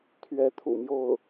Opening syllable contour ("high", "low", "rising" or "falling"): rising